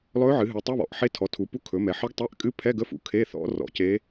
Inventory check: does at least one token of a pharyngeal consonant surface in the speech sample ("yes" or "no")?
yes